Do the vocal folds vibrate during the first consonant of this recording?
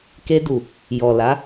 no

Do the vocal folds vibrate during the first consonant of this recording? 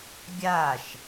yes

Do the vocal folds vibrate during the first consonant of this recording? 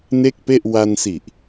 yes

